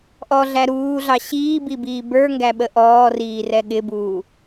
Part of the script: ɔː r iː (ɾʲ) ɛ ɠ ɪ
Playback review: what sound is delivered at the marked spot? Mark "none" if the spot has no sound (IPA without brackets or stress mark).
r